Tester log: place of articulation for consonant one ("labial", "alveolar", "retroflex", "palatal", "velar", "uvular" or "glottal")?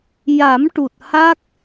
palatal